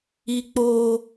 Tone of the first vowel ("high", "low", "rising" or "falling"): high